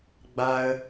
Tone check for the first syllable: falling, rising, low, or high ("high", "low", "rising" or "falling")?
high